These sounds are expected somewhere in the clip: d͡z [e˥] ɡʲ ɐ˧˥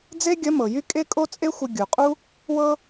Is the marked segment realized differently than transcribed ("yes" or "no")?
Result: no